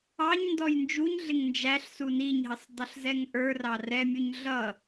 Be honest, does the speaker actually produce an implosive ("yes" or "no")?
no